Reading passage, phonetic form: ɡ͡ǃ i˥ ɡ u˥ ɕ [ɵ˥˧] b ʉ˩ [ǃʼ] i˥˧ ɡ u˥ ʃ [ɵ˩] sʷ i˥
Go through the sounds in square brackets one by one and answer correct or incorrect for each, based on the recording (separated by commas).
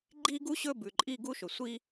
correct, correct, correct